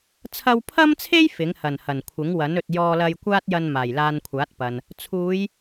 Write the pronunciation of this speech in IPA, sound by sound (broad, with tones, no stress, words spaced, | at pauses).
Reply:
t͡sʰɐ˧wpʰɐ˥mt͡sʰe˥j fɪ˨˥ŋhɐ˨˩n hɐ˨˩nkʷʰɪ˨˥ŋwɐ˨˥n ɵ˨t̚jɔː˧lɐ˧j kʷaː˥t̚jɐ˧n maː˨˩jlaː˧n kʷʰaː˨˥t̚pɐ˨n | t͡sʰuː˨˧j